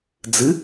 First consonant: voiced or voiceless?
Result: voiced